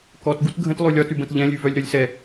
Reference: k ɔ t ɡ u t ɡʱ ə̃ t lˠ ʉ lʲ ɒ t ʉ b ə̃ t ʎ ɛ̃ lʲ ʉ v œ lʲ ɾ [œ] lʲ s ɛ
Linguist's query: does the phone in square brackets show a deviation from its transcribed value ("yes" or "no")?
no